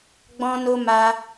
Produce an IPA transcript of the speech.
ɡ͡b ɔ̃˦ n o˦ m a˧

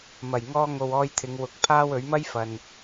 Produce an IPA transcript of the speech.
m ɐ˨˩ j ŋ ɔː˧ ŋ o˨ w ɔː˧ j t̪ʰ ɪ˨˧ ŋ w ʊ˨˥ k̚ pʰ aː˥ w ɵ˨˥ ɥ m ɐ˥ j f ɐ˨ n

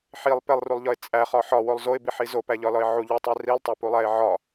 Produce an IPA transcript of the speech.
ħ i lˠ p e lˠ r u lˠ ʎ ɒ ɪ̯ t͡sʼ æ χ ɒ ħ ɒ w o lˠ z o ɪ̯ b i ħ i z o p æ ʎ ɒ l ɒ ɪ̯ ʕ u ʎ u tˤ e r i lˠ tˤ æ p u lˠ æ ɪ̯ ʕ ɒ

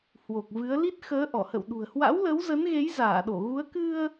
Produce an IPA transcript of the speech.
h w o˨˩ k̚ v ɨ˨˦ ə̯ l i˦˥ t̚ x əː˨˦ ʔ ɔ˧˩ h ə̰˧˨ w ɗ ṳ˨˩ ə̯ h w a̰˧˥ w l ə˨˦ w z ə˨˦ n ɣ e˨˦ j z aː˧˩ ɗ o˧˩ ɣ u˨˦ ə̯ k ɨ˧ ə̯

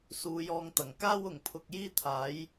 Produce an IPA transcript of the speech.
s uː˨˧ j ɔː˧ ŋ t̪ ɐ˨˩ ŋ k aː˥ w ʊ˨˩ ŋ pʰ ʊ˨ k̚ j iː˥ t̪ʰ aː˨˥ j

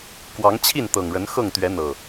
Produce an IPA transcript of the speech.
k w ɑ˨˦ ŋ t͡ɕʰ i˥˨ n t̪ ɤ˨˩ ŋ ɻ ə˨˦ n x ɤ˥˨ ŋ t̪ ɥ ɛ˨˦ n̪ ɤ˨˩

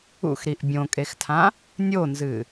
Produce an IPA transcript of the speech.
ṵ x ɾ i ʔ bʲ õ kʼ e x tʰ ã | nʲ o n z ɨ

